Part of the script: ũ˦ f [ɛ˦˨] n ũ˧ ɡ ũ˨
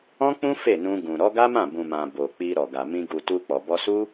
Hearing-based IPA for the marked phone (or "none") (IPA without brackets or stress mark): e˦˨